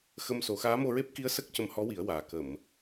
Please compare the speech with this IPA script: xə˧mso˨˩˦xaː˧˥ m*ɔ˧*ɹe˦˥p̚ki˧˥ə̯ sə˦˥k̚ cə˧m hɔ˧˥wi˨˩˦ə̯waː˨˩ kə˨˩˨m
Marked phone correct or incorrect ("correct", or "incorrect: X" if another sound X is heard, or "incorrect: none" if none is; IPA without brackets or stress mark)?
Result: incorrect: o˧